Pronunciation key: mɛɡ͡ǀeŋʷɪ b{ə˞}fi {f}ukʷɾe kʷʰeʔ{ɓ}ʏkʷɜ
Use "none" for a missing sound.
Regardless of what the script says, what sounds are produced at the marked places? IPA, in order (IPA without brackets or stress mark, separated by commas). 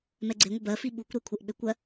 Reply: ɜ, ɓ, ɓ